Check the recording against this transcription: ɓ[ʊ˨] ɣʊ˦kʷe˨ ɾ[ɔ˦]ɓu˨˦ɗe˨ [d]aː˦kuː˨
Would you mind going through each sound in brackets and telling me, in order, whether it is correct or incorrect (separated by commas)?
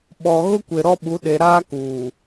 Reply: incorrect, correct, incorrect